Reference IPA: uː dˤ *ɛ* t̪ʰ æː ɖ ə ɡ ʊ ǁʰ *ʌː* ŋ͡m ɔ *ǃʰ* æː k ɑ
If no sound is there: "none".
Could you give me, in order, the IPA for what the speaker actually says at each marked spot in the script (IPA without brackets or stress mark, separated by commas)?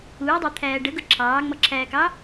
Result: æ, ɑː, ǁʰ